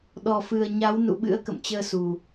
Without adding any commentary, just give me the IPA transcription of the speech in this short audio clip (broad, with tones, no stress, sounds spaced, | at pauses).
ɗ ɔ˨˩ f ɨ˨˩ ə̯ ɲ a˨˦ w n ṵ˧˨ ɓ ɨ̰˧˥ ə̯ k ə̰˧˨ m t͡ɕ əː˧ s u˨˩